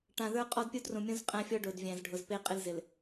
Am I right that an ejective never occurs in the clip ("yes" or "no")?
no